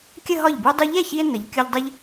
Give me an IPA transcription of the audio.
kʲ ə˥˧ ɦ ɒ˥˩ ʎ b u˧ dˤ ʏ˧ ʎ ɛ˥˩ ç i˧ e̯ n ə˩˧ ʎ kʲ ʊ˧ ʎ dˤ ə˧ ʎ

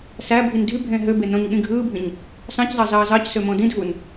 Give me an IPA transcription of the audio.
s æ bʱ i n dʱ y bʱ ẽː ɦ ø b e n õ ɲ ɠ ĩ ɡʱ ɯː bʱ ĩ ɲ | s ɑ̃ c zˤ ɑ z ɑː z ɑ c s ø m õ d ĩ dʱ u n

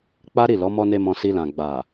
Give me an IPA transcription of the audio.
k͡p a˦ ɾ i˦˨ l ɔ˨˦ m ɔ˦ n e˦ m ɔ̃˧ s i˧ l ã˨ ɡ͡b a˨

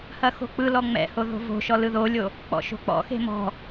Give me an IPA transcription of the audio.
h ɐ x o̤ k͡p ɯ l ɔ ŋ͡m ɛ̰ h o ð o̤ v o̤ ʃ ɔ l ɯ ð o lʲ o | k͡p ɔ̰ ʃ o̤ k͡p ɔ̰ x e̤ m ɔ̤

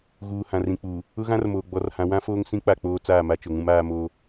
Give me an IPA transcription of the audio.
ɣ uː˨ h ã˨ r ĩ˨ k͡p uː˨ | ʊ˦ ɣ ã˦ r m oː˨ ɡ͡b ɔ˨˦ r h ã˨˦ w ã˦ f oː˦ ŋ s ĩ˦ k͡p a˦˨ k͡p oː˦ t͡s aː˦˨ m a˦ t͡ʃ ʊ˨ ŋ ũ˦ m aː˦ m oː˦

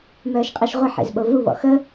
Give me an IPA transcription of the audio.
m œː ʃ qʼ e ʃ ʁʷ ə ħ ḛ z ɓ o v u β ɔ̰ x ə

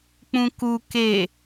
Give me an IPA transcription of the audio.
k͡p ũ k u k e

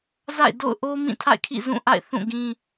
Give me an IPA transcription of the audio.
z a̰˦˨ ɪ̯ d o̰˦˨ ʊ̯ ʔ o˦ m ĩ˦˨ tʰ a̰˦˨ ɪ̯ kʰ ḭ˦˨ z ũ˦˨ ʔ a̰˦˨ ɪ̯ θ ũ˦˨ ɡ ĩ˦

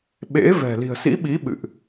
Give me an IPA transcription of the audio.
ɓ ḛ˧˥ v ɛ̤˨˩ l i̤˨˩ ə̯ s ḭ˧˥ ɓ i˨˦ ɓ ɨ̰˧˨ ʔ

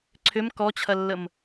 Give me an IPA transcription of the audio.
ǀʰ ʏ m k ɔ t͡ɕʰ ɐ lː ə m

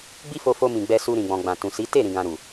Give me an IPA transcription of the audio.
ɡ͡b i˦ f o˧ f o˧ m ĩ˨ ɡ͡b ɛ˧ s u˧ ɾ ĩ˨ ɡ͡b ɔ̃˨ ɡ͡b ã˨ t ũ˨ s i˨˦ t e˦˨ ɾ ĩ˨ ɡ ã˨ ɾ u˨

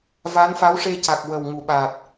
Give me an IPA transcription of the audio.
v a˧˥ n f a˧˥ w ʂ e˧ c a˨˩ k̚ w ə˨˩ w ŋ u˨˩˨ ɓ aː˨˩ t̚

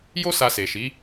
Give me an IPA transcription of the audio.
j o˦ s a˧ s e˨ ʃ i˨˦

